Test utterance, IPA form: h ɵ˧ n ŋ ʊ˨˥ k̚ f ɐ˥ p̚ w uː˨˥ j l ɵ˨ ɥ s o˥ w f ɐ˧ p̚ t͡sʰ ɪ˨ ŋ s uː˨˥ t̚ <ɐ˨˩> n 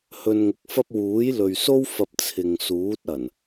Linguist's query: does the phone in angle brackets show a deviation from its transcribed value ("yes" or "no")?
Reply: no